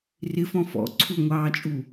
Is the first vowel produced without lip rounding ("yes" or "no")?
yes